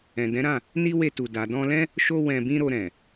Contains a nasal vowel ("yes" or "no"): yes